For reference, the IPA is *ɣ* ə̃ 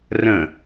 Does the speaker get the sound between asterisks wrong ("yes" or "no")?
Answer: yes